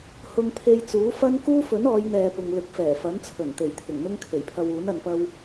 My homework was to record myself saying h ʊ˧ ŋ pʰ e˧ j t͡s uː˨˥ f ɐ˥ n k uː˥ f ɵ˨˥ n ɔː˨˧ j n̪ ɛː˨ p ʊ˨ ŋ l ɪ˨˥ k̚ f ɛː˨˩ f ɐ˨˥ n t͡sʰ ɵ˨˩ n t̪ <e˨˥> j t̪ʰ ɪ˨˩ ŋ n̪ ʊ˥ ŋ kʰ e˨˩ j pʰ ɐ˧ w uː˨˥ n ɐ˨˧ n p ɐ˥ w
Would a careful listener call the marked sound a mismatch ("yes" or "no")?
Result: yes